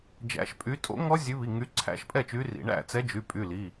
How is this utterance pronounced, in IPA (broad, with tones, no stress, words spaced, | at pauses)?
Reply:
d͡ʒæ̰˨˦ʃpʼy˨˦tʼo̰˦˥ ŋɔ˦˥zʲʉ˨˦βi˩˧˩ ŋy˨˦ǀʰæ̰˦˥ʃ pʼɛ˥˩t͡ʃy˨˦rḭ˩˧˩ ɳæ̰˥˩t͡sɛ˨˦ d͡ʒy˩˧˩pʼy˩˧˩li˩˧˩